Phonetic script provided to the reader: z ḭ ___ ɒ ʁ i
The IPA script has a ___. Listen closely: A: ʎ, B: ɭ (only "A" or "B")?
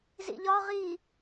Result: A